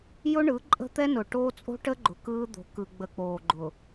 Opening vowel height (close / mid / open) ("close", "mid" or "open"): close